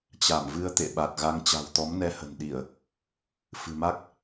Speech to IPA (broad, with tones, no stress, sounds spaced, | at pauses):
t͡ɕ a˧˩ m v ɨ˧ ə̯ t̪ ḛ˧˨ ɓ a˨˩ t̚ ɣ a˧ ŋ t͡ɕ a̤˨˩ w t̪ ɔ˨˦ m n ɛ˧ h ə̤˨˩ n ɗ i˧˩˨ ə̯ | f ɨ̤˨˩ m a˦˥ k̚